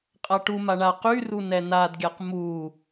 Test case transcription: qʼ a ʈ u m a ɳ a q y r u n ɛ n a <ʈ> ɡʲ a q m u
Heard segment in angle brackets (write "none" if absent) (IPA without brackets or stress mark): d